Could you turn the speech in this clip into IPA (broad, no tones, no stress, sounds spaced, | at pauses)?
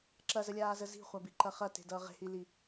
ǁ ɐ z ə lʲ aː z ə z i̤ χʷ a b i ǃ ɐ χ ɐ t e̤ d ʌː ʁ e̤ h i l i